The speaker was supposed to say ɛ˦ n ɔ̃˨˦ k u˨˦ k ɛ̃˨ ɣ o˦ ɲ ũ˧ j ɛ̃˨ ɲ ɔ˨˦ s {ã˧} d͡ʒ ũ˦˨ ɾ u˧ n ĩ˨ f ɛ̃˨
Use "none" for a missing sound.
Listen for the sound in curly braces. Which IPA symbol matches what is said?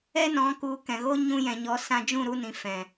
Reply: ã˧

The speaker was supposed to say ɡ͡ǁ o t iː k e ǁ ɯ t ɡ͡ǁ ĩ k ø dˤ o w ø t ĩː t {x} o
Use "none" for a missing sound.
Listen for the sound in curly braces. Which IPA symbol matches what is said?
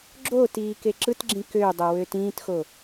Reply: x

